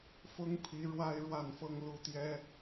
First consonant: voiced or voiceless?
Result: voiceless